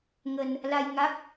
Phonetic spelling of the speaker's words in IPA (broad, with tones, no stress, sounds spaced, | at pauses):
ŋ ə˧ n | l a˧ j ŋ a˦˥ k̚